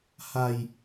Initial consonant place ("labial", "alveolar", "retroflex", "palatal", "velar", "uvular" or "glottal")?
glottal